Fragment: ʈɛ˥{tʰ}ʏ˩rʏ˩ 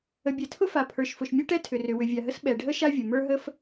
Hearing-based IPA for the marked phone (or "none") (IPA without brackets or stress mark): tʰ